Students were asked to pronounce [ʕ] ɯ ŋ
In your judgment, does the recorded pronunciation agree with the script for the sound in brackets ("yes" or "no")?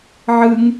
yes